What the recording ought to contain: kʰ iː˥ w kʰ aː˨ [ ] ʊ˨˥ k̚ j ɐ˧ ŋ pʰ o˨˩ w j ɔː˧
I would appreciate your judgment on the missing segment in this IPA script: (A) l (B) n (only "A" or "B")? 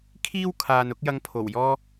B